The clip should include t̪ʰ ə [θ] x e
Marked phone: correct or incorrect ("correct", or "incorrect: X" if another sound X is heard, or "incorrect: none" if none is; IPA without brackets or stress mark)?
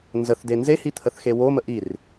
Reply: correct